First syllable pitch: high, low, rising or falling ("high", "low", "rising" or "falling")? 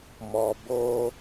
low